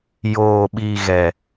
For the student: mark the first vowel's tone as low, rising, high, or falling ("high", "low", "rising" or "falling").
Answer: low